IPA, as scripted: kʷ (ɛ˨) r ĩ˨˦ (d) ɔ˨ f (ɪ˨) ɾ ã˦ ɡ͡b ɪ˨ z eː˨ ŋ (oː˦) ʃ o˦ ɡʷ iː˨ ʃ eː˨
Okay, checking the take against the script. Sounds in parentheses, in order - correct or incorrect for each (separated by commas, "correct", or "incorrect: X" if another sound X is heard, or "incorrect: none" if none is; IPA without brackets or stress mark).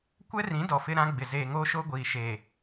incorrect: ɛ˦, correct, incorrect: ɪ˦, correct